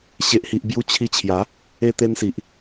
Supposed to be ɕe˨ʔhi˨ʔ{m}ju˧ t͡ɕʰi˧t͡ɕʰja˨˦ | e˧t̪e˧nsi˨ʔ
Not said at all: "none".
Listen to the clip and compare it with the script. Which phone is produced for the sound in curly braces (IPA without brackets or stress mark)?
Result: b